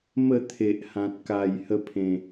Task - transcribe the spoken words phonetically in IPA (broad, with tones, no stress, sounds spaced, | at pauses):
m ə˥˧ t̪ʰ e˨ ʔ h ã˨ t̚ k a˨˩ j h ə˥˧ pʰ ẽ˨˩